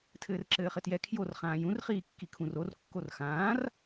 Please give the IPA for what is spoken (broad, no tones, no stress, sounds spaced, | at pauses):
tʰ ɘː r ǁ ɘː χ ɘ t j ɛ kʰ j o r χ ãː j ũ r χ iː kː i kʰ ũ r o r kː o r x ãː r